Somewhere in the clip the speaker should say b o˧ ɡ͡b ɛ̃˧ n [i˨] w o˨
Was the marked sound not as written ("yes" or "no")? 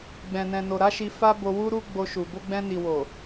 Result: no